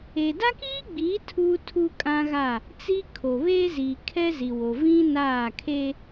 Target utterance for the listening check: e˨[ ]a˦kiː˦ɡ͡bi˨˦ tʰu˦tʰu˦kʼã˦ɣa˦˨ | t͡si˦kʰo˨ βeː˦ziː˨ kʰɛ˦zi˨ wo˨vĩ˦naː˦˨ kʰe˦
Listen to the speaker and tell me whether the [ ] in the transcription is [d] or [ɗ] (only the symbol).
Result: d